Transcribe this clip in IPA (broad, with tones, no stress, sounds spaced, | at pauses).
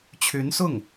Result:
t͡ɕʰ y˧˥ n s ʊ˥˩ ŋ